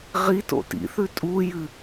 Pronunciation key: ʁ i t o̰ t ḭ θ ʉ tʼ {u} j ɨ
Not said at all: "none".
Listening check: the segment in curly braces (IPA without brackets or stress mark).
u